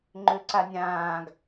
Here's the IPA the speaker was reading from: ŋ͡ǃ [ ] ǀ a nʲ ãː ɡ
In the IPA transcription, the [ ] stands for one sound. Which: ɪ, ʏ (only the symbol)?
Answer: ʏ